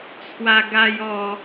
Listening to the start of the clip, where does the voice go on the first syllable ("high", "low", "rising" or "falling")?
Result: high